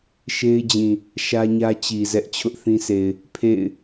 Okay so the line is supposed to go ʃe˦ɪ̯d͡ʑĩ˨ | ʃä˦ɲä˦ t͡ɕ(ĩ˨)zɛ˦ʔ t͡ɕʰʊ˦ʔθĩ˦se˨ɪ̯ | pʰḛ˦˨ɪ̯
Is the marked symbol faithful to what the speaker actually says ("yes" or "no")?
no